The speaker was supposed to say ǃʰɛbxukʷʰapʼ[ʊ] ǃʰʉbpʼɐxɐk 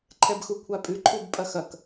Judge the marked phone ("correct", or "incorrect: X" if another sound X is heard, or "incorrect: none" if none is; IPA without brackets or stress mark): incorrect: ʉ